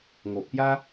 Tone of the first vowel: low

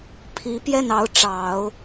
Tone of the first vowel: rising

